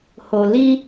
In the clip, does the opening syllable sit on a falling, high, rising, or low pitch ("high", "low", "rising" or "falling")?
low